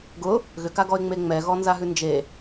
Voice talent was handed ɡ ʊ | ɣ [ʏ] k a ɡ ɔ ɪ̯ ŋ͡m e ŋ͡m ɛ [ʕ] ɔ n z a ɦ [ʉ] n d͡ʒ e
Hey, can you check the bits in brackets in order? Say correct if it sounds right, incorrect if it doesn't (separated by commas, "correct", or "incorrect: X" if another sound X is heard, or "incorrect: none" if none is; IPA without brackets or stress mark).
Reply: correct, incorrect: ɣ, correct